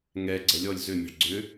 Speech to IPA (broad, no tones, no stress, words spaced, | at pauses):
ŋɛ ɡ͡ǀɛlʲɔlʲ zʏmʲɛ̤ɭ ɡ͡ǀʏ